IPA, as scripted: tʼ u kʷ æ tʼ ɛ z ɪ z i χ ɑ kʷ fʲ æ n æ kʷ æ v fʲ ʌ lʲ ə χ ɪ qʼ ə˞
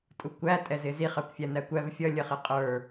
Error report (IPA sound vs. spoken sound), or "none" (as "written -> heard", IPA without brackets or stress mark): none